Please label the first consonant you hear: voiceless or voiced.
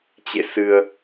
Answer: voiceless